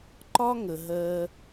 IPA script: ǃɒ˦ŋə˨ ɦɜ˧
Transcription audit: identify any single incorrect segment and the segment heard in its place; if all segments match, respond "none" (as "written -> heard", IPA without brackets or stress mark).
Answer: none